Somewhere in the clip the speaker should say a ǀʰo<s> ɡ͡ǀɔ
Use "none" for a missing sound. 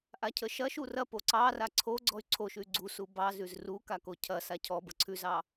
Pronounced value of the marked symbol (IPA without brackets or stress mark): none